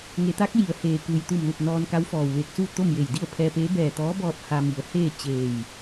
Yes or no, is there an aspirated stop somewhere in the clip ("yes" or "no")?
yes